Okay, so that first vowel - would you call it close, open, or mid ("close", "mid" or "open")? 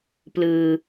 close